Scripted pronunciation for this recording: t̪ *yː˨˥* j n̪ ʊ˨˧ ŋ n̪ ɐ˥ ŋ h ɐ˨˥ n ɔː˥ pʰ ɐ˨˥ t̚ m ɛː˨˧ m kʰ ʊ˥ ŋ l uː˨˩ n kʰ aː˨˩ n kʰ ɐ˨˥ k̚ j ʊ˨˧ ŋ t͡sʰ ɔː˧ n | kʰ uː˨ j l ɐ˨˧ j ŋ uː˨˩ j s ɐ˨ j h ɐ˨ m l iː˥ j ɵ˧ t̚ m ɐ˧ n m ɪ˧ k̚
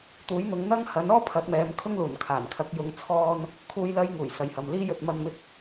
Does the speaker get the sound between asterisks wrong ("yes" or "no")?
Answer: yes